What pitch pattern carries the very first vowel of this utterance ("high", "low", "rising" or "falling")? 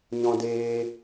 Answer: high